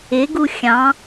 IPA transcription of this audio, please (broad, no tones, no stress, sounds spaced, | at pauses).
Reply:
ɪ ɡ u xʲ ɑ̃